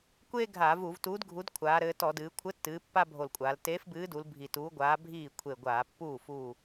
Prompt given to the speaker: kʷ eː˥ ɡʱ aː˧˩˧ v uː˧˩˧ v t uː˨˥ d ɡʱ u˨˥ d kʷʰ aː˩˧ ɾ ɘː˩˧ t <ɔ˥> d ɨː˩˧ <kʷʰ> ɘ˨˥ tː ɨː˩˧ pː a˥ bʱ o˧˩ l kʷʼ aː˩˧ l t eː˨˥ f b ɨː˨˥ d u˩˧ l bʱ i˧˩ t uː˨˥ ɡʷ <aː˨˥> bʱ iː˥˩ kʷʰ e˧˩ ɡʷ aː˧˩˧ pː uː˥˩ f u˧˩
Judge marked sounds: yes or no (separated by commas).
no, yes, yes